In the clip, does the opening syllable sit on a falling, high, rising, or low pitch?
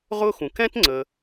high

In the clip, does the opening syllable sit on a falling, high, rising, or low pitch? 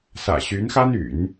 low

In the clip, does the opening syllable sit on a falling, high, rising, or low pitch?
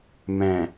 low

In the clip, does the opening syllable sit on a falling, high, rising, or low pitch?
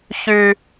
high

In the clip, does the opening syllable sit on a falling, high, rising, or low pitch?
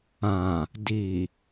low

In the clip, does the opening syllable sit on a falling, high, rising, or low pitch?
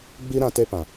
high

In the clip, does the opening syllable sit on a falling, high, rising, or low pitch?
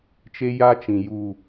high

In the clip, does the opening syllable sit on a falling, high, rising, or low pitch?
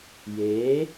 rising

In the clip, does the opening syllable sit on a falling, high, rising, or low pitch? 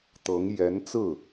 rising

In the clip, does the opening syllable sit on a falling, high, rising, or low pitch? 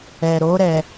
low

